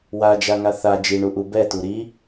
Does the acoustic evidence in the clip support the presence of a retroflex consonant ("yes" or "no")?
yes